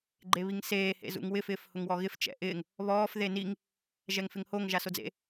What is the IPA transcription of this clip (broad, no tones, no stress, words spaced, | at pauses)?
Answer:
ɡ͡ǃeβiŋseː hḛzṵŋwɪf ɪːfhʊŋwɔɣɪf t͡ʃɛ̰ʔɪːŋ | βɔːf ðeniŋ | ʒɛŋfɪŋhoŋ ʒasod͡zḛ